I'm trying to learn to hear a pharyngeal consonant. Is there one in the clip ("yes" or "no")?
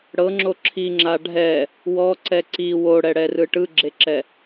no